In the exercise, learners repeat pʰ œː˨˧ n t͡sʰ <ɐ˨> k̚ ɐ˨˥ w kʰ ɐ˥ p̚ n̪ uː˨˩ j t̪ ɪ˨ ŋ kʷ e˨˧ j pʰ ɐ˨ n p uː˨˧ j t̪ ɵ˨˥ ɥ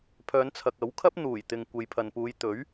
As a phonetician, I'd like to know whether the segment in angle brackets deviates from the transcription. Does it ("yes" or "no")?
no